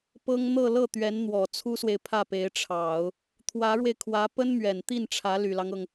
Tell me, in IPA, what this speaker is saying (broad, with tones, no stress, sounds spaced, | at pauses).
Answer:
p ɤ˥ ŋ n̪ ɤ˥˧ l ɤ˥˩ t̪ ɥ ɛ˧˥ n n̪ w ɔ˨˩ t͡sʰ u˥ s w e˨ ɪ̯ pʰ ä˥˩ p e˧˥ ɪ̯ ʈ͡ʂʰ ɑ˨˩˦ ʊ̯ | t̪ʰ w ä˧˥ ɻ w e˧ ɪ̯ kʰ w ä˧˥ p ə˥ n m ɥ ɛ˨˩ n t̪ i˥˩ n ʈ͡ʂʰ ä˧˥ l y˨˩ l ɑ˦ ŋ ɤ˩ ŋ